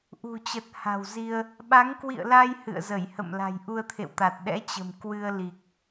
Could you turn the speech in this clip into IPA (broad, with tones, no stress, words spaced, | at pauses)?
ʔṳ˨˩t͡ɕə˨˩t̚ ha̤˨˩wzi˧ə̯ | ɓa˨˦ŋkwḭ˧˨ə̯la˧j hɨ̰˧˨ə̯zə˧˩jhə̰˧˨m la̤˨˩jʔu˧ə̯t̪ʰḛ˧˨wt̪a˨˩t̚ ɗɛ̰˧˥t͡ɕə̤˨˩m kwɨ˧ə̯ li˨˩k̚